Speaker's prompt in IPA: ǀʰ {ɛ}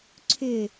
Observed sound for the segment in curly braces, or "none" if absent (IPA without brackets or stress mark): ʏ